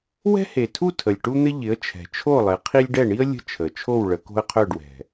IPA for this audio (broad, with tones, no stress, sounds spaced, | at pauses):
w ɛ̤˥ h e˨˩ tʰ u˥˧ tʰ ə˨˩ lʲ ʈ u˥ n̪ ɪ˥ ʎ ɪ˨˦ ə̯ t͡ʃʰ ɛ̤˨˩ t͡ʃʰ o˥˧ lˠ ɪ˨˦ qʰ i˥ lʲ ɖ ɛ˥˧ ɳ i˥ ə̯ lʲ ə̤˥ t͡ʃʰ ə˨˩ t͡ʃʰ o˥˧ w ɭ ə˨˦ k o̤˥ ə̯ qʰ œ˥˧ ɖ w ɛ̤˨˩